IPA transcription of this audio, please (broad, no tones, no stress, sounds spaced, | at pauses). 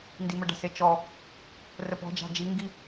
n d i m ə ɖ a̤ s e t͡ʃ ɔ | r ə p ɔ̤ d͡ʒ a̤ d͡ʒ i ŋ ɡ i